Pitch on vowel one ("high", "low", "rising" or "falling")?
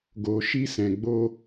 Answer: low